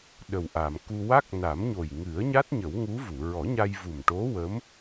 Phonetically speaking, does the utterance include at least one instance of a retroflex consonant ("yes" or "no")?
yes